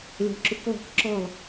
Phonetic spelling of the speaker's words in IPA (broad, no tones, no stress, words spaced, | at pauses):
lʲɔ̤ǁuklˠo̤k ǁɔlˠ